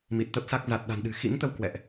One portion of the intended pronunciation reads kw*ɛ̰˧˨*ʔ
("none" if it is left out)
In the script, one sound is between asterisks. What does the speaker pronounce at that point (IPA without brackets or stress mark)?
ɛ̰˧˨